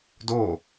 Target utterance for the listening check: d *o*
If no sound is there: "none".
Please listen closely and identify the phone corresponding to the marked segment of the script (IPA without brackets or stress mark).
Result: o